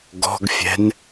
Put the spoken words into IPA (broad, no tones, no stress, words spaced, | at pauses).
ɡɔ̤ɡfʲɛ̤n